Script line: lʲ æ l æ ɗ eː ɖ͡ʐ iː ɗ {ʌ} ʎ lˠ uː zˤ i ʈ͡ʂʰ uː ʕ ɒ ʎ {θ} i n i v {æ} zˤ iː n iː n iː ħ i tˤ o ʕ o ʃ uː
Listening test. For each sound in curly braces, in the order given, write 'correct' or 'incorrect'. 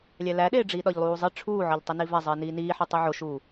incorrect: ɒ, incorrect: tˤ, correct

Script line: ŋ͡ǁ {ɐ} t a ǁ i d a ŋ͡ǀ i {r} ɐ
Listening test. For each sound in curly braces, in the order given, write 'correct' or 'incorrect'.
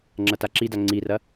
correct, correct

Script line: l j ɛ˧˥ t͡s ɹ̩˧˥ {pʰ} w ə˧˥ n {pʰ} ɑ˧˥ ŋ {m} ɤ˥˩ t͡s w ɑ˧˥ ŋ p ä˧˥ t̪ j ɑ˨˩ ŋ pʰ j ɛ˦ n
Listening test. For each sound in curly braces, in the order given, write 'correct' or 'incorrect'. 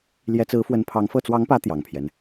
incorrect: f, correct, incorrect: f

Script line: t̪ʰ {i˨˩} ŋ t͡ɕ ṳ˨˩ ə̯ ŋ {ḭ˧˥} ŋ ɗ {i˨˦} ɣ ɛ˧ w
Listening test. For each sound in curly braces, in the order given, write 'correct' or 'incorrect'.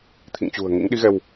incorrect: ḭ˧˨, correct, correct

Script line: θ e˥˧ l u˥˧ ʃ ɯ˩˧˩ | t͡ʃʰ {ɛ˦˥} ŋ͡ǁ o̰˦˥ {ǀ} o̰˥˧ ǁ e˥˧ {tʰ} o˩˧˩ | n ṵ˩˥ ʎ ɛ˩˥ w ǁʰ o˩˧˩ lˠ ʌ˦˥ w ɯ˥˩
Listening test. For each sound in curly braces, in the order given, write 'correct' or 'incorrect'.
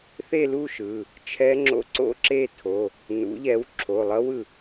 correct, correct, correct

